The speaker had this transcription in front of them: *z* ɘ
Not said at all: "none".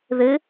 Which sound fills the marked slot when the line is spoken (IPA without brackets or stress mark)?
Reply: ð